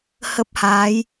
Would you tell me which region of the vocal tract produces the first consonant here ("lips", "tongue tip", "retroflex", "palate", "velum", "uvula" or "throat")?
throat